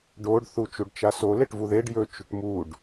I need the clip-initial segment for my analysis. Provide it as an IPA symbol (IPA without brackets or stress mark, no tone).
ɖ